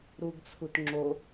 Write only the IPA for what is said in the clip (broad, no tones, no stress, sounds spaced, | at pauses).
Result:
ɾ u ɡ t͡sʰ u t ŋ͡ǁ o